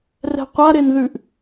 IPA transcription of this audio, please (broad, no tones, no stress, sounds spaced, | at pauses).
r ɛ̤ qʷ a ɾ e n ð ʉ ʔ